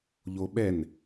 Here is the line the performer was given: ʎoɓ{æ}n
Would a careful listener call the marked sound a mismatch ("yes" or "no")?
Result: yes